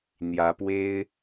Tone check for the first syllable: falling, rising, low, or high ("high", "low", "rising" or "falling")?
rising